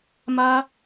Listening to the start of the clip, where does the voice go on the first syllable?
high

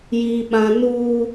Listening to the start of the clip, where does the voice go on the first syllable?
high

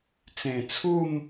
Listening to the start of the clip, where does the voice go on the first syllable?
low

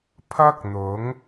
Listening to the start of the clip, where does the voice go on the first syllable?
high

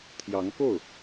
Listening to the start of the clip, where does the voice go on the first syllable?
rising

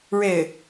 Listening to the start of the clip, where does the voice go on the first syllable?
falling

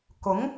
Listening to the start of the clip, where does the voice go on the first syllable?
rising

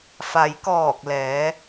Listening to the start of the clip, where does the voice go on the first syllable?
low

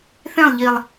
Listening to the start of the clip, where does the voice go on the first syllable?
falling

